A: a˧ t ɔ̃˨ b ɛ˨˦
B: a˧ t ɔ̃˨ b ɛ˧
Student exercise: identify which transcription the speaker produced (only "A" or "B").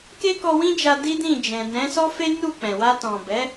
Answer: A